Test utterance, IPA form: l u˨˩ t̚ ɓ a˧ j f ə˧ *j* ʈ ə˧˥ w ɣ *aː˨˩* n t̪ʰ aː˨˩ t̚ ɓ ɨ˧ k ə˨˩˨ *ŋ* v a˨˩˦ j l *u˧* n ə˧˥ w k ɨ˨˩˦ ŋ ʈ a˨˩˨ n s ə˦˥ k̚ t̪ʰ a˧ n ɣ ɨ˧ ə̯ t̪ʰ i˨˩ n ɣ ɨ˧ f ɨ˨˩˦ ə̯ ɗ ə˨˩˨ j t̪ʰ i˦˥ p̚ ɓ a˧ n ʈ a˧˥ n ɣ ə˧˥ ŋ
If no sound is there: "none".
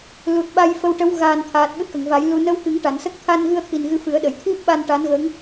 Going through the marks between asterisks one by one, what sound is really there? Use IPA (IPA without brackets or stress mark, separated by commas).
w, aː˨˩, ŋ, u˧